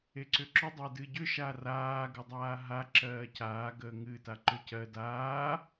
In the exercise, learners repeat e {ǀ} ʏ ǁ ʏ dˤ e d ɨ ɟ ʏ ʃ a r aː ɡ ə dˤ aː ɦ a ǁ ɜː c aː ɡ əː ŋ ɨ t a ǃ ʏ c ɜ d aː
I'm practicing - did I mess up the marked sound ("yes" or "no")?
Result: no